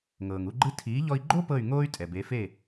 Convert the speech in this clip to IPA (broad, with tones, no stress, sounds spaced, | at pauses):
ŋ ɤː˩ ŋ u˥˩ ɡ͡ǃ ɯ˧ tʰ iː˩˥ ʎ ɔ˧ i̯ ɡ͡ǃ o˥ p ɤ˥˩ y̯ ŋ oː˥ y̯ tʼ ɛ˩ b e˩˥ f e˥˩